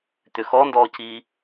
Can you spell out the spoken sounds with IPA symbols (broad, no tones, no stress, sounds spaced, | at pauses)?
t̪ ʏ x ɔ n d ɔː c iː